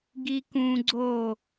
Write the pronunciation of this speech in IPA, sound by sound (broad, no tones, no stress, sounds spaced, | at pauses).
ɡ i k ũ ɡ͡ǀ o